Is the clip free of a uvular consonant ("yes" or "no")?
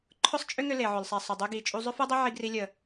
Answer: yes